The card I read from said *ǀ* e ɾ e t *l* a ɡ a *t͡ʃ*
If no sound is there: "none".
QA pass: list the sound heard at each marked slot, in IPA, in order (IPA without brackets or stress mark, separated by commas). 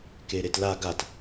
k, l, t